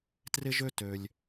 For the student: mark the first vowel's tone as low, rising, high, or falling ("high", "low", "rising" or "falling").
high